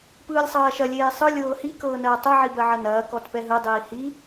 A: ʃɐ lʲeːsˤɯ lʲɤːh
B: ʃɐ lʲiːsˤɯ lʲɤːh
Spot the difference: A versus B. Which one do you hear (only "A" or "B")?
A